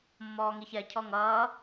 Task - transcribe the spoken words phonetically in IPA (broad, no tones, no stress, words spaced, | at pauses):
mːɔːŋiçɛ cʰɔŋʌː